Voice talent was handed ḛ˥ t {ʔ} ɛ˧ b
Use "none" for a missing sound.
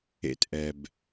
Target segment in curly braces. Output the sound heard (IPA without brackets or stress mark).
ʔ